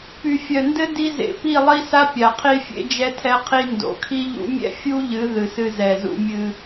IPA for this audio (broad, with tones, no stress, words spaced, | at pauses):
py˨fʲœ˨ndɘ˦ di˧zḛ˨ pi˦˨lˠi˦sa˦ pʲa˨qʰi˦fʲḛ˦ d͡ʒɛ˧tʰɛ˧qʰi˧ ndo̰˨kʰi˦ʎṵ˦ mʲɛ̰˦fʲu˦ʎɨ˨˦ ðɨ˨sɨ˧ zɛ˨zṵ˧mʲɨ˧